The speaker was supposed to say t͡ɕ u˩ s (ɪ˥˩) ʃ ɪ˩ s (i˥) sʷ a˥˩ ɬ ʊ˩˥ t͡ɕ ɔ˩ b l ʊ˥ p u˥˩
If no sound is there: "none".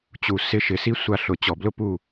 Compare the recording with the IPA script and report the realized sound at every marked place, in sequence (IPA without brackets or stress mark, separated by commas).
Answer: ɪ˧, i˥